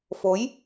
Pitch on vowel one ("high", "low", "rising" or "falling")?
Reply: rising